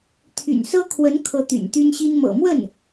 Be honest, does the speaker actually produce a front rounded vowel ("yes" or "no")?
yes